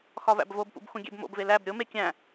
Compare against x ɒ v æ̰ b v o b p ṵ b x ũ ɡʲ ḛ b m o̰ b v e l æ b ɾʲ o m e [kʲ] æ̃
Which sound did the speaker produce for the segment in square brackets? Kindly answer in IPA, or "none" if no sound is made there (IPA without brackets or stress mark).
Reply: kʲ